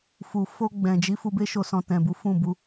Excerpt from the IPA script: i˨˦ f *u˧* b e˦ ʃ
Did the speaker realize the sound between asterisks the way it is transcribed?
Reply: yes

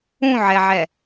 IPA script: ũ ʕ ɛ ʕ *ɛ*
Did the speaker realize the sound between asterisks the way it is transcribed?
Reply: yes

